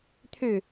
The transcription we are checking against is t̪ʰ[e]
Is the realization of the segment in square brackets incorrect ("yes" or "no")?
yes